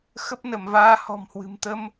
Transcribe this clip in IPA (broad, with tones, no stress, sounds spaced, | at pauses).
x ə˦˥ p̚ n ə˧˩ m v aː˧ h ɔ̤˨˩ m h w ɨ̤˨˩ m t̪ ə˧ m